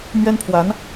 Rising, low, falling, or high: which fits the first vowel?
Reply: high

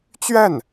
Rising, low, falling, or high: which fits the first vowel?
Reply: falling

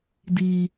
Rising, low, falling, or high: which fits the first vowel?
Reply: low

